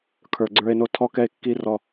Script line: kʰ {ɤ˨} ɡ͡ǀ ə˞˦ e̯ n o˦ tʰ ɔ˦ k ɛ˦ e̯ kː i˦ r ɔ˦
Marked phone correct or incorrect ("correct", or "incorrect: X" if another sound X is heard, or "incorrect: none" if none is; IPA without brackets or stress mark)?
incorrect: ə˞˨